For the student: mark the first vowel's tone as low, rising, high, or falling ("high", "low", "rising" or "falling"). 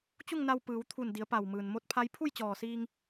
falling